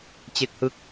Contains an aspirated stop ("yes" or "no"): no